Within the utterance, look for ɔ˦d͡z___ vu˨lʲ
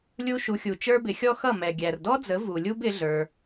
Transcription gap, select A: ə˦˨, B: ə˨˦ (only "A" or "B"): B